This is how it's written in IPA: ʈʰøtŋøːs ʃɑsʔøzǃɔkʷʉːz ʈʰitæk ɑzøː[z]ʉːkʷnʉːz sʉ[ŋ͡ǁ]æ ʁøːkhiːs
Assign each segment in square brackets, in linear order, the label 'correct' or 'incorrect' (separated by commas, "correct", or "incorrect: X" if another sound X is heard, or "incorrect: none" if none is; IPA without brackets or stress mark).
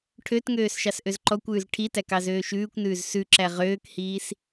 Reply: incorrect: ʃ, incorrect: ǁ